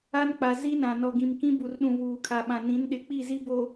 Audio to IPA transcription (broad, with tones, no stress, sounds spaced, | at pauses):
a˦ n k͡p a˨ z i˦ n ã˨ n ɔ˨ ɡ ĩ˨ m k ĩ˦ b u˨ r ɗ ũ˨ β uː˨ kʰ a˨ ɓ ã˨ n ĩ˨˦ n ɗ ɪ˨˦ k͡p i˦˨ z i˦ b o˨